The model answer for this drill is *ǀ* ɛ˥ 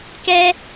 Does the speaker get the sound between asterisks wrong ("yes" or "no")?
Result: yes